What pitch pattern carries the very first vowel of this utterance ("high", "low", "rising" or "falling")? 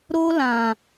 high